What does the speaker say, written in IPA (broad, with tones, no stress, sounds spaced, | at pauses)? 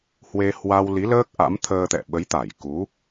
h w e˧ h w a˧ w l i˨˦ l əː˦˥ k̚ ʔ a̰˧˥ m t̪ʰ əː˧ t̪ ɛ̰˧˨ ɓ ə˨˦ j t̪ a˧˩ j k u˨˦